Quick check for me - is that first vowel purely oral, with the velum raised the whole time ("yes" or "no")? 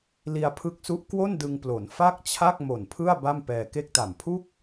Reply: yes